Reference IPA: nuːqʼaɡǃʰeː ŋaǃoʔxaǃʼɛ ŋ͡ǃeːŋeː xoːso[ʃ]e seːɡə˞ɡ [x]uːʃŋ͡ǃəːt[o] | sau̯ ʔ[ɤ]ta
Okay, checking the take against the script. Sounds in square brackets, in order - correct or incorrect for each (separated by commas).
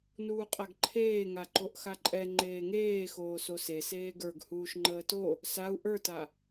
incorrect, incorrect, correct, incorrect